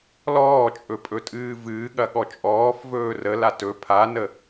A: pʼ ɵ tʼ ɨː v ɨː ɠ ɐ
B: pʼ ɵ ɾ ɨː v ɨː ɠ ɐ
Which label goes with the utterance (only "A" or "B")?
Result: A